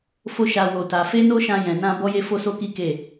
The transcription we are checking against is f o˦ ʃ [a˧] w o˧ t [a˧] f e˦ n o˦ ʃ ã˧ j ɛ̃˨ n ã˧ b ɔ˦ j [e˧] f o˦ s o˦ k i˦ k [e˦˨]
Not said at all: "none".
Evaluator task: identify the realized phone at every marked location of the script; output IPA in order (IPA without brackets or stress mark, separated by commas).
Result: a˧, a˧, e˦, e˦˨